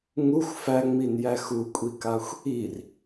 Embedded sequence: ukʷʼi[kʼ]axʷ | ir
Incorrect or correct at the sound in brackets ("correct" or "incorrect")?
incorrect